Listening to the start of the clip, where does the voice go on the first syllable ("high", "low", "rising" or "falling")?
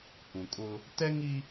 low